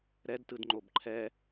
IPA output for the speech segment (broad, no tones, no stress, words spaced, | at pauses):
ɾɛdtɯd ŋ͡ǃobǃʰɛ